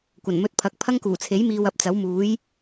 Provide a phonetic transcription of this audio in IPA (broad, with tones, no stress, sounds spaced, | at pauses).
kʷ ɐ˨˩ n m ɵ˧ t̚ pʰ ɐ˨˥ k̚ pʰ ɐ˥ ŋ k uː˨˩ t͡sʰ e˨˥ j m iː˧ w ɐ˨ p̚ t͡s ɐ˨˥ w m uː˨˥ j